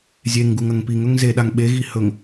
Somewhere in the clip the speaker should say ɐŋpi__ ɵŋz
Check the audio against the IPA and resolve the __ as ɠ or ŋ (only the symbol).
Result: ŋ